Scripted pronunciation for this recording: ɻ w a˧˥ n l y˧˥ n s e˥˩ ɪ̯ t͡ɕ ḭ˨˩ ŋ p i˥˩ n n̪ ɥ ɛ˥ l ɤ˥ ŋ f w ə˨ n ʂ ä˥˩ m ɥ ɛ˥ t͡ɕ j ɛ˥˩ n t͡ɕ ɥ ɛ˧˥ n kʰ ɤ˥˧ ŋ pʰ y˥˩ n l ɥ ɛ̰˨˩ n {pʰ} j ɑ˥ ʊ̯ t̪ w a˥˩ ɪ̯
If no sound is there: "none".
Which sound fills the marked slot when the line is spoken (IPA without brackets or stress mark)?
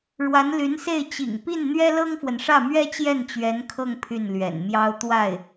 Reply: m